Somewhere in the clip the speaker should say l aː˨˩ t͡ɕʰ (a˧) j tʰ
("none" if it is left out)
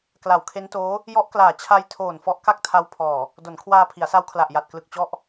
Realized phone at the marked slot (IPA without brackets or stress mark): a˧